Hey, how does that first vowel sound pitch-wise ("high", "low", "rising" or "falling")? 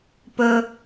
low